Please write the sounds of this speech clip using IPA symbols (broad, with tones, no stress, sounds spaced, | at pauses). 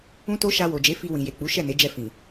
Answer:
ũ˦ t o˦ ʃ a˧ w o˨ d͡ʒ e˨˦ f i˧ w ĩ˨ j e˨ k͡p u˨˦ ʃ ɛ˦˨ n e˨˦ d͡ʒ ɛ˧ f ĩ˨